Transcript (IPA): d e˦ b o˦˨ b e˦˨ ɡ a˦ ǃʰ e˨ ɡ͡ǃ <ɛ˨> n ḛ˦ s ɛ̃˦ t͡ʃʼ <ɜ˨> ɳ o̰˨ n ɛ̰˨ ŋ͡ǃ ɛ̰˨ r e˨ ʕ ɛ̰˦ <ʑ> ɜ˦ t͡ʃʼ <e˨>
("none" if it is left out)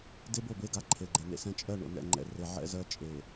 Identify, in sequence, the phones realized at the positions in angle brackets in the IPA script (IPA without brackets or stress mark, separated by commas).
ɛ˨, ɜ˦˨, z, e˨